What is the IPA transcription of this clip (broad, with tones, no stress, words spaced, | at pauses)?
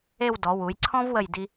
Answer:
e˥˧w dɔ˩˧wu˩˧j ǀʰɔ̃˥vwə˧˩j di˧